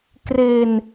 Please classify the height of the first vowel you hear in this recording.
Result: mid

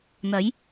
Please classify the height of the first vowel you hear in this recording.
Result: low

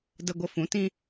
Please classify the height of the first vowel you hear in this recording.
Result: mid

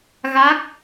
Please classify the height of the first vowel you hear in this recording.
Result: low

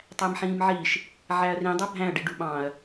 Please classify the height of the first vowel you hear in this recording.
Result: low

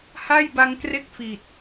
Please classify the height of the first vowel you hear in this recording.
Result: low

